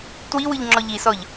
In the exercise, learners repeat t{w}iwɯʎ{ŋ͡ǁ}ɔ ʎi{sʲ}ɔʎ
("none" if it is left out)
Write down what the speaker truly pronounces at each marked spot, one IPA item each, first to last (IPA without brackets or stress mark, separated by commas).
w, ŋ͡ǁ, s